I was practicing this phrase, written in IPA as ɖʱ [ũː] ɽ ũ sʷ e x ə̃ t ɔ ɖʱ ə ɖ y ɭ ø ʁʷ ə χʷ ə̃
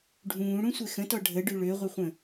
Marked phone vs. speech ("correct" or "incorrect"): correct